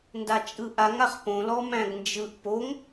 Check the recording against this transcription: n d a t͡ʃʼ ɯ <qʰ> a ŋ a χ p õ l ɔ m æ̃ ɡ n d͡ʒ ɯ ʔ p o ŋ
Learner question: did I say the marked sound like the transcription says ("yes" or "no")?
no